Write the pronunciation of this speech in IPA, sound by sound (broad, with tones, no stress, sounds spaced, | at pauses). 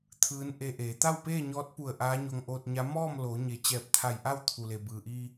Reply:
t̪ʰ ɯː˧˥ n ʔ e˧ ʔ eː˩˧ t̪ a˥˨ w p eː˥˨ ɲ ɔː˧˥ t̚ p u˧˩ ə̯ ʔ aː˧˥ ɲ o˧ ŋ ʔ oː˧ t̚ ɲ a˧˥ m ɔː˥˨ m l oː˩˧ ɲ e˩˧ t͡ɕ ɛː˧˩ p̚ t̪ʰ a˧˩ j ʔ a˥˨ w t̪ʰ u˩ l e˩ b ɯː˩ ʔ iː˧